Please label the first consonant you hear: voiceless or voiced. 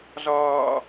voiced